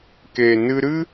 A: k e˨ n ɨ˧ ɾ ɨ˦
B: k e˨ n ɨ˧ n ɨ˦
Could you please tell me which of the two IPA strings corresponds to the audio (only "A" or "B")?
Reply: A